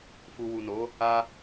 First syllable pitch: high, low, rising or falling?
low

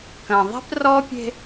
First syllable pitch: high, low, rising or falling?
low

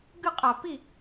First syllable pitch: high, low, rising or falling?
falling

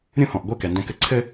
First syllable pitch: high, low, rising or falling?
falling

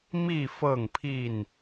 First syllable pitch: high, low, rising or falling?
falling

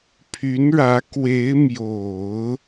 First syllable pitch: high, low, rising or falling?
rising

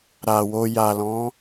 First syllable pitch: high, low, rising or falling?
low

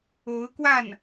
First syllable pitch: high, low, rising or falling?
rising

